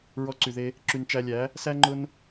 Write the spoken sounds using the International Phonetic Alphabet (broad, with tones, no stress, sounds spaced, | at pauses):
ɹ ɔ˧ ǀ y˨ ð e˧ | ǁ y˨ n t͡ʃ æ˧ lʲ æ˨˦ | s æ˦ ŋ͡ǃ ʊ˦ n